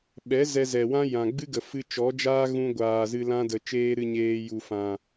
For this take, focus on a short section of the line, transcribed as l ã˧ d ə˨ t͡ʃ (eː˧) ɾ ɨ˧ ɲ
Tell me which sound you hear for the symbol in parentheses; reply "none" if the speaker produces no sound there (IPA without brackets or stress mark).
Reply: eː˧